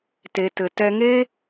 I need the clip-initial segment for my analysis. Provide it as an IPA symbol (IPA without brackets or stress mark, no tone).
t